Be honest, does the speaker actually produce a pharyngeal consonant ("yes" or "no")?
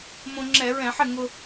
yes